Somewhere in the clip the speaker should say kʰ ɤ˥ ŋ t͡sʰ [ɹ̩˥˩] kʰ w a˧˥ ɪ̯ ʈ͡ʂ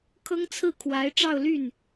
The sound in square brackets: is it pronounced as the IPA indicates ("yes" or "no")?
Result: yes